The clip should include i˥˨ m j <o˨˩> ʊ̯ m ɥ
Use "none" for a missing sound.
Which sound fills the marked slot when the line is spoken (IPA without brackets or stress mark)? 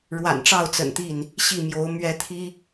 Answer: o˨˦